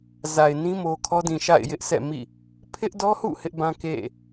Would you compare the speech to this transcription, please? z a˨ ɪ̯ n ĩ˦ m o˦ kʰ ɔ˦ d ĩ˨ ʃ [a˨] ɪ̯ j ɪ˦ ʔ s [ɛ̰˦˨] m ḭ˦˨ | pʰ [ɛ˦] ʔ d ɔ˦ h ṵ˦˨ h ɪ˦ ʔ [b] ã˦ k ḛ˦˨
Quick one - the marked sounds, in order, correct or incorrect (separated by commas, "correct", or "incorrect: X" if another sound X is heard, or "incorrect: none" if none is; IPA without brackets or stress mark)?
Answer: incorrect: a̰˦˨, correct, incorrect: ɪ˦, correct